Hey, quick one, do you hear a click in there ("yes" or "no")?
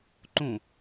yes